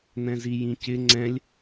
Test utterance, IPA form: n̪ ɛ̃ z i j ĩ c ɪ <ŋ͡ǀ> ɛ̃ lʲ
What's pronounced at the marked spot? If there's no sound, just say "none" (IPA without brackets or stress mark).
ŋ͡ǀ